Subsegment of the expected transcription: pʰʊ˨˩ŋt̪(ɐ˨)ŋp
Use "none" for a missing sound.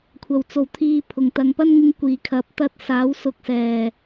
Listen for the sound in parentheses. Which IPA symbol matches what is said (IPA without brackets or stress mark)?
ɐ˨